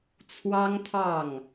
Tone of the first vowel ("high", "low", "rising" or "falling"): high